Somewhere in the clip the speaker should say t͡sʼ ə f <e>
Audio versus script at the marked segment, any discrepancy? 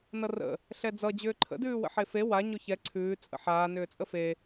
no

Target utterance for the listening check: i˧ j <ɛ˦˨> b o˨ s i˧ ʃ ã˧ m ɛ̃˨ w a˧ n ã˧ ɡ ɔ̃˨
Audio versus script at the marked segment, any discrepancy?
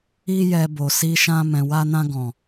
yes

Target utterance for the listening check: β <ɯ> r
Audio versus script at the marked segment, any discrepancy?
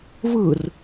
no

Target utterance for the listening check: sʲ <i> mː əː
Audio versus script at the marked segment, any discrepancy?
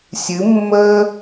yes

